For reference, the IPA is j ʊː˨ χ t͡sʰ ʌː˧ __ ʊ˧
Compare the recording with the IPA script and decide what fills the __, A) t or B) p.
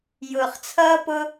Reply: B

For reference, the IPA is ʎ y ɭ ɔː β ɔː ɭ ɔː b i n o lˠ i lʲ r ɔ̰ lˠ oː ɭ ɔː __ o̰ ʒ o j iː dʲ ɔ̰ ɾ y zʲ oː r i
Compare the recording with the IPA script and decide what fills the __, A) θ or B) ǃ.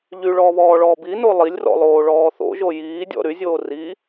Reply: A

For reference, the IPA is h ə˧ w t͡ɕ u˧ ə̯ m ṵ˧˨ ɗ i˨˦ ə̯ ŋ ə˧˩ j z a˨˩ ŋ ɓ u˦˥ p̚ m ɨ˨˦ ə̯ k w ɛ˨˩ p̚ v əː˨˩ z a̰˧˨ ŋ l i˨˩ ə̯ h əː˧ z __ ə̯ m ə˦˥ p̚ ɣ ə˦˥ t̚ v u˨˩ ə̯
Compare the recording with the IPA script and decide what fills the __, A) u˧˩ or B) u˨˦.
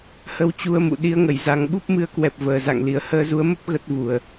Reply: B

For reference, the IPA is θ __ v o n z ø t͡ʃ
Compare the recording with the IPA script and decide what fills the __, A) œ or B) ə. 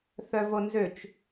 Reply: A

